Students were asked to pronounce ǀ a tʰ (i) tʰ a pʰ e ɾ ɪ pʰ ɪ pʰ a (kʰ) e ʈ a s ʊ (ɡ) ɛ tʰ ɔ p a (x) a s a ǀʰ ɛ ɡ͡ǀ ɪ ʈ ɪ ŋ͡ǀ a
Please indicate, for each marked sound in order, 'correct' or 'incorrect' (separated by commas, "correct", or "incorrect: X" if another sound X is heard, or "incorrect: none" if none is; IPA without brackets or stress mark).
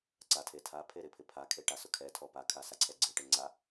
incorrect: e, correct, incorrect: kʰ, incorrect: kʰ